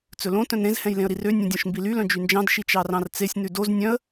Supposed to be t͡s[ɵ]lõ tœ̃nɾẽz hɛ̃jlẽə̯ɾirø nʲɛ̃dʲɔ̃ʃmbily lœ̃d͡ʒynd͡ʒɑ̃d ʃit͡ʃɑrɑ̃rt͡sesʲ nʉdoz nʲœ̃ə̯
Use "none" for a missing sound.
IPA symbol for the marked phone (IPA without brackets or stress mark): ɵ